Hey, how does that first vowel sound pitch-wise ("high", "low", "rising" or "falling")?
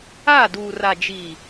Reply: falling